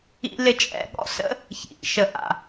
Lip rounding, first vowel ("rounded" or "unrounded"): unrounded